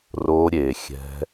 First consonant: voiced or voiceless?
voiced